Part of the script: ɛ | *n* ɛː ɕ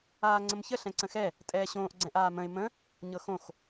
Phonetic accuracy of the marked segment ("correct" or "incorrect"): incorrect